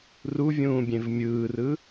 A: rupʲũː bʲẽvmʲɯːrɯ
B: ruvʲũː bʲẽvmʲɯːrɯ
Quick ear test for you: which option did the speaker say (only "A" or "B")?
B